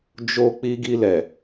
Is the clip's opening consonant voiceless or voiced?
voiced